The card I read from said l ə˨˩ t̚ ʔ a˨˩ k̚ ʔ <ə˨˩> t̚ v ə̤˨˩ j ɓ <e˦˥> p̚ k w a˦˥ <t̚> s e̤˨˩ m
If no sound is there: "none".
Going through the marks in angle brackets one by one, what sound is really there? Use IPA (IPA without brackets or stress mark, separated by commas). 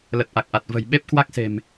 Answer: a˨˩, e˦˥, k̚